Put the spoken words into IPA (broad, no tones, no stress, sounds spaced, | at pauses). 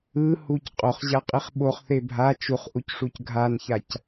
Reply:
ɯ h u c qʼ o χ ʑ a qʼ i χ ɓ o χ θ e bʱ a t͡ʃ u χ ʔ u c ʂ u c ɡʱ a n ç a c